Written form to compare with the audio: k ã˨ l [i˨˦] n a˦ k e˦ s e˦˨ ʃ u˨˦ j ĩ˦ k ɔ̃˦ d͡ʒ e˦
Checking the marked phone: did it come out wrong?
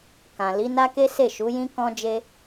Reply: no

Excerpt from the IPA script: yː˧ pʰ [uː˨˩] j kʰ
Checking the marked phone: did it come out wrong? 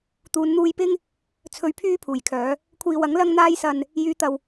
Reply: no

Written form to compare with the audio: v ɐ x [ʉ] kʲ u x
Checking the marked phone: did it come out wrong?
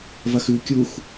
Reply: no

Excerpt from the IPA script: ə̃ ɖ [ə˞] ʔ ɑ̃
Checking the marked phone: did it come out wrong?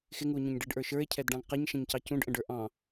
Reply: no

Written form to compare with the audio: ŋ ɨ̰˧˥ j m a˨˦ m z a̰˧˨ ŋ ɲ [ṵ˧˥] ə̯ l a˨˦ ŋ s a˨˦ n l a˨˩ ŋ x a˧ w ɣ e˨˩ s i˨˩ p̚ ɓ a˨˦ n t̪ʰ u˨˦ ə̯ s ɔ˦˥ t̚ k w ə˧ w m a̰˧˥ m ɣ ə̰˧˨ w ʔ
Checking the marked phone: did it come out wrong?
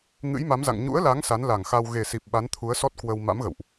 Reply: no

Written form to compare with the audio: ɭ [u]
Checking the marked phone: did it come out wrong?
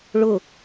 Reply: yes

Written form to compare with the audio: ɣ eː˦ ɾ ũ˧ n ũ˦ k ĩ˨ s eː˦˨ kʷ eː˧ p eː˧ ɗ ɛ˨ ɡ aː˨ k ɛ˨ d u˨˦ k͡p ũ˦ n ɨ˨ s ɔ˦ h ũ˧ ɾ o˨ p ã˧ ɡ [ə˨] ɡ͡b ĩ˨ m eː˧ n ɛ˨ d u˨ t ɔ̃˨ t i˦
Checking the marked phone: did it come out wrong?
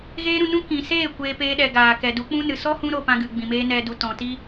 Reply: yes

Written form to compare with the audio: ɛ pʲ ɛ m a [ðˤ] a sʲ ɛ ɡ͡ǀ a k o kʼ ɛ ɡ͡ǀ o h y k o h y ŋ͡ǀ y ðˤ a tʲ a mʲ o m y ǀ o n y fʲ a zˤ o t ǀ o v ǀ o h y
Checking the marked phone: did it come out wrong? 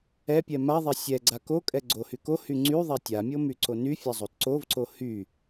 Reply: no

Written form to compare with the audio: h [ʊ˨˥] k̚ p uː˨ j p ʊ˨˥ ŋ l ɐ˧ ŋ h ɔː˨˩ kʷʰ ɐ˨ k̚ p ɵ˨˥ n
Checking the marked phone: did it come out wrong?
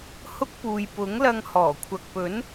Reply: yes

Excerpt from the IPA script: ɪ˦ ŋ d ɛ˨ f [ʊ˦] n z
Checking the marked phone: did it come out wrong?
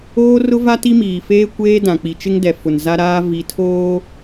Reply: yes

